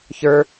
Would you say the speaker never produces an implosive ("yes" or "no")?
yes